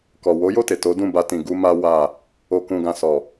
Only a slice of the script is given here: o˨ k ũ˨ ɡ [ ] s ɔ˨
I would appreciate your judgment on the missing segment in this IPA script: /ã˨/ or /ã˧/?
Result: ã˨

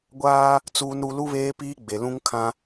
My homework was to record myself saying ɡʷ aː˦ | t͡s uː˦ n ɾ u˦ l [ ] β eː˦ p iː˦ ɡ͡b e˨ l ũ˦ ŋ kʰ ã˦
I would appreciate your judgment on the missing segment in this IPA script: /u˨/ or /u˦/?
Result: u˦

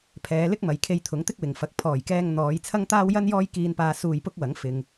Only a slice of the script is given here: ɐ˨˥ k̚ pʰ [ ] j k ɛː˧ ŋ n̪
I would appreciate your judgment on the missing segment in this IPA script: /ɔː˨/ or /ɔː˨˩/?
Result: ɔː˨˩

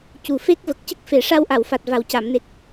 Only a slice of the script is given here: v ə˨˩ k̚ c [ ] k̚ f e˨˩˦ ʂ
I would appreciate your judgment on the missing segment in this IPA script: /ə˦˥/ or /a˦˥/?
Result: ə˦˥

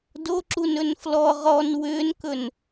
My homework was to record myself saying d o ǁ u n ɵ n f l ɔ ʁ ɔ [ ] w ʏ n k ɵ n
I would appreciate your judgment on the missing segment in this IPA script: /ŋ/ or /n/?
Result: n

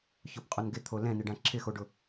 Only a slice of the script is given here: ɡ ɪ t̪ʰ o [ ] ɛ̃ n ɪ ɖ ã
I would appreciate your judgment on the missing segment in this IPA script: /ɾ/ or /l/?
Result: l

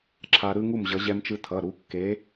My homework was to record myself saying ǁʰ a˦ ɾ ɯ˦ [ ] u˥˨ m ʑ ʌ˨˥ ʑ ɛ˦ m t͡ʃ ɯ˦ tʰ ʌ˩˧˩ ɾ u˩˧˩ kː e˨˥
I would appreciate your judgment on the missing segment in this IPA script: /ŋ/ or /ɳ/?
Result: ŋ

